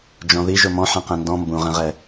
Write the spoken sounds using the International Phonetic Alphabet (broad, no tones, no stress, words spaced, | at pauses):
d͡ʒɔ̃ði ʒʊmɔ̃ ħɛ̃qɛ̃ndɔ̃ mbũʁɛ̃ʁɛ